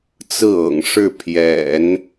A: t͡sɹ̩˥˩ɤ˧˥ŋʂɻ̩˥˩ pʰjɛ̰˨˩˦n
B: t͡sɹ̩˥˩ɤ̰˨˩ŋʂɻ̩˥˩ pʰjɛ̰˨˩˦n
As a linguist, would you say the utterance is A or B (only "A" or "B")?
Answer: B